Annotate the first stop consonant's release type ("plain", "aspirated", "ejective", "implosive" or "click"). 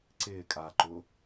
click